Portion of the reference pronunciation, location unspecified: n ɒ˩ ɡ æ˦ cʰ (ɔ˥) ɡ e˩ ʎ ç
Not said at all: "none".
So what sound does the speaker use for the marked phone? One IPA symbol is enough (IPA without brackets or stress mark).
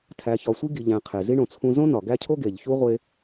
o˥